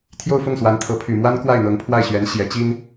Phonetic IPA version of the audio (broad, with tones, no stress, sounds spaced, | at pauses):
t̪ʰ j o˥˧ ʊ̯ f ʊ˥˩ ŋ s w a˧˥ n t̪ʰ ɤ˧˥ pʰ y˨˩ m w a˥ n k w a˥˩ ɪ̯ n̪ ɤ˧˥ ŋ pʰ w a˥˩ ɪ̯ ɕ ɥ ɛ˧˥ n ɕ j ɛ˧˥ t͡ɕ i˥ n